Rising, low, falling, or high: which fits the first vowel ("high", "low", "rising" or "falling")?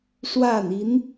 falling